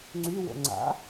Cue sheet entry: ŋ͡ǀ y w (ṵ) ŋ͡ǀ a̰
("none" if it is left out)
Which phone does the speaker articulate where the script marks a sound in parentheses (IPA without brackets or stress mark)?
o̰